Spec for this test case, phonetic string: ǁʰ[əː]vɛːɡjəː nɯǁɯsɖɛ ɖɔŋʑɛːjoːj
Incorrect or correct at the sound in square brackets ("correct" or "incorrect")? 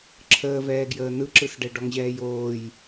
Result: correct